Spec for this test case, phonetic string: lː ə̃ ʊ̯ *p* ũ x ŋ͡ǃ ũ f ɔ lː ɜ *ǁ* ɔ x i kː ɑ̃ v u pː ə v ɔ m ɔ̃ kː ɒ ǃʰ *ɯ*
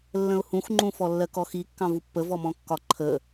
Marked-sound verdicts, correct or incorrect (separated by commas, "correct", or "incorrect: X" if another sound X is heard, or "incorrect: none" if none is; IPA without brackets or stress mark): incorrect: h, incorrect: k, incorrect: ə